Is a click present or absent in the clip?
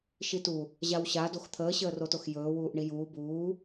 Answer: absent